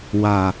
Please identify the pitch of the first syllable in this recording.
low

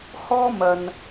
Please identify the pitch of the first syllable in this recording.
high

